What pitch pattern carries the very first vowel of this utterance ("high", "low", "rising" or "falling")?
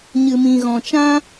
low